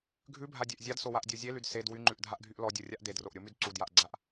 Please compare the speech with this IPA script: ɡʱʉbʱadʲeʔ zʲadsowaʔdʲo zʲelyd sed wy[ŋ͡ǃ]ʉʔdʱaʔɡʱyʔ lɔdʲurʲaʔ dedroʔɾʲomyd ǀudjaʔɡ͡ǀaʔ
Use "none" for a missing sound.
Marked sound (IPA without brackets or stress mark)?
ŋ͡ǃ